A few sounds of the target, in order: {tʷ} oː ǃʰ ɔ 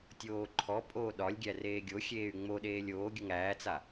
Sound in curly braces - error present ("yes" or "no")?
yes